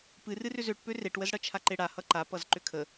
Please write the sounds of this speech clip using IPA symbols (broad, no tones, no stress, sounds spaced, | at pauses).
p ɨ r ɨ r ʏ z ø ʈ p ø r e ʈ w ə z ɽ ʌ t͡ʃʰ a ǃ e ɽ a h ʌ ǃ a p ʌ z ǃ ʏ kʰ ə